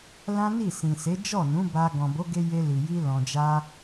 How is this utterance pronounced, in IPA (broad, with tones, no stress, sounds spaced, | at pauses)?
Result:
l ã˦ n i˦˨ s ĩ˨ s e˨˦ d͡ʒ ɔ˦˨ n ũ˨˦ b a˧ ɡ ɔ̃˨ b o˨˦ ɡ e˧ j e˧ l i˨ j i˧ l ɔ̃˨ d͡ʒ a˧